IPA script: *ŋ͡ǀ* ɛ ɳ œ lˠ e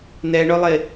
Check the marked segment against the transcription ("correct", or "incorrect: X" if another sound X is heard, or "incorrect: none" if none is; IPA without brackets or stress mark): incorrect: n̪